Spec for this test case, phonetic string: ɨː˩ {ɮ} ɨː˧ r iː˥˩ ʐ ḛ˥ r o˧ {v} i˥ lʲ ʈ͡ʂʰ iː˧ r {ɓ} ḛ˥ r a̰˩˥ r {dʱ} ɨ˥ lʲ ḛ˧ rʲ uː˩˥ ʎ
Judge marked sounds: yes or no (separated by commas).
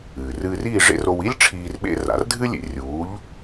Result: no, no, yes, yes